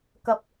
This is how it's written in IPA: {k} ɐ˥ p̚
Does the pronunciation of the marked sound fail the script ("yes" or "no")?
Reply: no